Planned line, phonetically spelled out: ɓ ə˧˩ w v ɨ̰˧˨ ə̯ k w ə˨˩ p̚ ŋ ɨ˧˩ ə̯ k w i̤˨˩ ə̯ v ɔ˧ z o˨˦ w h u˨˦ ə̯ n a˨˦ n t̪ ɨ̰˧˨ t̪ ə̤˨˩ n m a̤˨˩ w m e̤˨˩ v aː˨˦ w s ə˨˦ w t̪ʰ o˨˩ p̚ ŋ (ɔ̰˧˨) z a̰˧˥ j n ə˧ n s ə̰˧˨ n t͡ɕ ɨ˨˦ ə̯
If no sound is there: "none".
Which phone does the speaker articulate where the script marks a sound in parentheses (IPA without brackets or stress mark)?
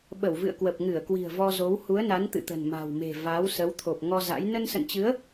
ɔ˧